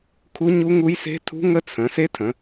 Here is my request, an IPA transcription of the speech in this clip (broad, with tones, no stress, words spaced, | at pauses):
kʰu˦˥ɲu˦˥ŋu˦˥jse̤˦˥ tʰṳ˦˥ŋə˦˥ t͡sʰə̃˩˧ se˦˥tʰə̃˩˧